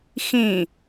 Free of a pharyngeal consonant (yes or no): yes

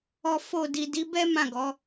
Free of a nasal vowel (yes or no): no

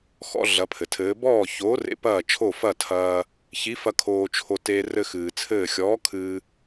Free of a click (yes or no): yes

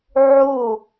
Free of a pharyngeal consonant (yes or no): no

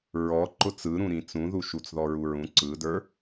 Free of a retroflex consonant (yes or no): yes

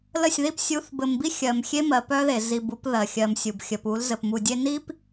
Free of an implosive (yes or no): yes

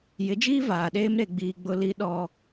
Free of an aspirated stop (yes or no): yes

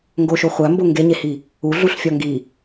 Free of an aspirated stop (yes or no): yes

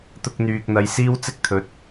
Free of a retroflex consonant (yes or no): yes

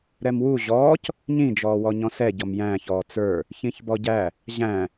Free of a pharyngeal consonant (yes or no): yes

